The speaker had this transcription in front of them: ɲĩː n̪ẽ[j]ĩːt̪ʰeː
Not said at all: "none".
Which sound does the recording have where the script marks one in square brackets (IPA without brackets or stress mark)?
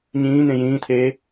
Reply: j